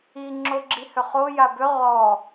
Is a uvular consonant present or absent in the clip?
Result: present